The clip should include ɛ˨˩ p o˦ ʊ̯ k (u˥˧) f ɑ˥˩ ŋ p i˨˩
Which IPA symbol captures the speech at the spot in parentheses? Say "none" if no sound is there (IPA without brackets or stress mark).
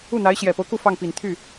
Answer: u˥˧